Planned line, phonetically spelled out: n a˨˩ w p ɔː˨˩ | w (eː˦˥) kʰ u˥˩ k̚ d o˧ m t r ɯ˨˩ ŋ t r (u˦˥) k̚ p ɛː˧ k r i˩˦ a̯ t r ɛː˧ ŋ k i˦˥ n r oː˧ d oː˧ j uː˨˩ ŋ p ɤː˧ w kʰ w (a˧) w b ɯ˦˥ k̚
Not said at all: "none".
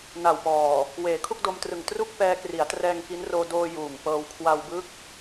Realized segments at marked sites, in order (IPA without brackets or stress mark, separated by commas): eː˩˦, u˥˩, a˧